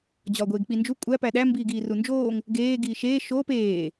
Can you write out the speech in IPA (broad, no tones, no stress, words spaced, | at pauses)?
d͡ʑɒːɡʷeːɡk͡pind͡ʒu kʷʼæ pæɗæ mbiːɡiːrund͡ʒoːŋ | ɡeː ɡiːʃeː ʃoːp eː